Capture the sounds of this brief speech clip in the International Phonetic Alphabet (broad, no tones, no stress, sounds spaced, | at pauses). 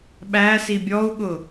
ɓ æ s i bʲ ɔ u̯ ɠ ʊ